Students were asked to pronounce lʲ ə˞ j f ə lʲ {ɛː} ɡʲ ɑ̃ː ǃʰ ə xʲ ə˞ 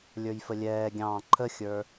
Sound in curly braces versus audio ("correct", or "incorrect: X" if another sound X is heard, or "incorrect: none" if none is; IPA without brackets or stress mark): correct